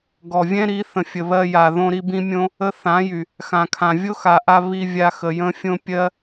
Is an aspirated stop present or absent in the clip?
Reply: present